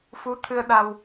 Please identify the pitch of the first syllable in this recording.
rising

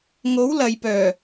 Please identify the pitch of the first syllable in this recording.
rising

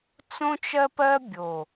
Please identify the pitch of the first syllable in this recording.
high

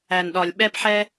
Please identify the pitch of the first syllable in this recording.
low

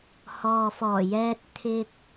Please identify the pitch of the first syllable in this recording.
low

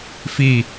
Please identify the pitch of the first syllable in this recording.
falling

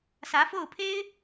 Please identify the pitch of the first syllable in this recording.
rising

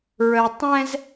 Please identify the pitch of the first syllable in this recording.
low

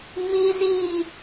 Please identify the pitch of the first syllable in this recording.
high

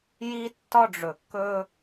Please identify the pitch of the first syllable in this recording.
high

